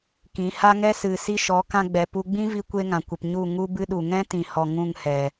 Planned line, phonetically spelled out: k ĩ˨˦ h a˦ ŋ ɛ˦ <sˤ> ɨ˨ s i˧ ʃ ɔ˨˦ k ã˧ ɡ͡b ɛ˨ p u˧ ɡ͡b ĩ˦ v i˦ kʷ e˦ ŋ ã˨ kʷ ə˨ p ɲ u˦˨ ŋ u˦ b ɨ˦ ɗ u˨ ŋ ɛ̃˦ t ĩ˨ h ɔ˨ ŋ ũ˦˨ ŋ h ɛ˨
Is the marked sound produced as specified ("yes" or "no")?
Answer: no